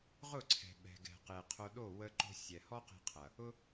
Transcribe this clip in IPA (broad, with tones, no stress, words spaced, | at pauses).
ʁʊ˦˨ǀʰɛ̤˨ ɓɛ̤˨ɡɛ̤˨ qe˨ qʰo˧ɗo˦˨ wə˧ ǃo̤˧sʲɛ˨hɔ˦qe̤˧ qʰɐ˨ | ʊ˧